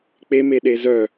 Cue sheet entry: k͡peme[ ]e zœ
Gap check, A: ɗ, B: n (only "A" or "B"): A